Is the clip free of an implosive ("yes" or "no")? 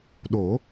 no